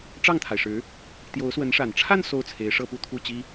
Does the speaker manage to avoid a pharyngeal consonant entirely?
yes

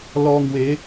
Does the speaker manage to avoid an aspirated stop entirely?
yes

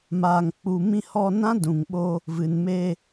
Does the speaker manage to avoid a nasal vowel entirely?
no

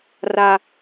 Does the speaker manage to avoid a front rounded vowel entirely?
yes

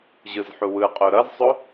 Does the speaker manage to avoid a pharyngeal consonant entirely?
no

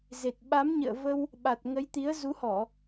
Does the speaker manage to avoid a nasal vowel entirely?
yes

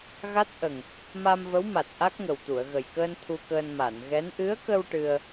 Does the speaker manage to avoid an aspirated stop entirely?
no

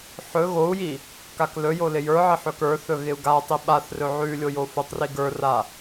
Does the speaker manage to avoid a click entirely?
yes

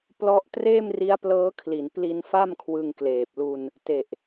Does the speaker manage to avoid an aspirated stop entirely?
no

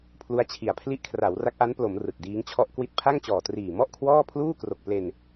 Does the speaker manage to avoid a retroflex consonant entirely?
yes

